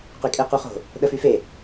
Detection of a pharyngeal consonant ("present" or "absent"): absent